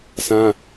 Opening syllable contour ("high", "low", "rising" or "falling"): high